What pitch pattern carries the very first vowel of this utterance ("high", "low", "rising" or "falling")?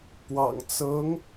low